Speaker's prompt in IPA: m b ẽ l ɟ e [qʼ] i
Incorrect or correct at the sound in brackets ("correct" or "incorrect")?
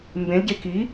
incorrect